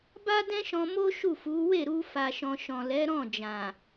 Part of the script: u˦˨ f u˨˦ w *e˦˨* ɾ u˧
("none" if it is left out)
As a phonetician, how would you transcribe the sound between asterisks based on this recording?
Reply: e˦˨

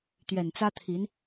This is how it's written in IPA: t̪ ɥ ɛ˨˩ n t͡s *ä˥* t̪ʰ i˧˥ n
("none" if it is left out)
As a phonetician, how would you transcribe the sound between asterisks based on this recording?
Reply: ä˥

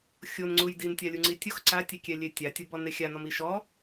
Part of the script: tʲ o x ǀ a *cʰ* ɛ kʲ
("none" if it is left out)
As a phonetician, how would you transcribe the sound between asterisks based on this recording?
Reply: tʲ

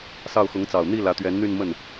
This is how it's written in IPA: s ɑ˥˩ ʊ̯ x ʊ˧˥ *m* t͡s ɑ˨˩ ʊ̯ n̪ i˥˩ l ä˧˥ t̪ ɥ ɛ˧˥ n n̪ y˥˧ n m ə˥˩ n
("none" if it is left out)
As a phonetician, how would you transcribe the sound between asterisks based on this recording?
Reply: ŋ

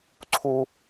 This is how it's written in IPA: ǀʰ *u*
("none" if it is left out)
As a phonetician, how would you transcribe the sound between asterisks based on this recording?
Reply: u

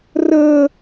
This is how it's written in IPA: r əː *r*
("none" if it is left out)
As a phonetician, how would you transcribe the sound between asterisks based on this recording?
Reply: none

